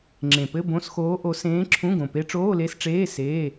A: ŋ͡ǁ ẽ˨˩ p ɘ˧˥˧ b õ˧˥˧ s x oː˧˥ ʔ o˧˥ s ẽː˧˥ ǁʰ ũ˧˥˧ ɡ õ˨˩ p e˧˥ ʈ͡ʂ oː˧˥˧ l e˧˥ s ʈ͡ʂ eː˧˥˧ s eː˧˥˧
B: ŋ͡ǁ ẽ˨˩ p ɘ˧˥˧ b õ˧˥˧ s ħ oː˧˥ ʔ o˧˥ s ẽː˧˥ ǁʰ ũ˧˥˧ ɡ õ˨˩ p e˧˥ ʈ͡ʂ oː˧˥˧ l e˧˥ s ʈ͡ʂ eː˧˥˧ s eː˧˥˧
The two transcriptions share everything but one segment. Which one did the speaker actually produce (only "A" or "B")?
A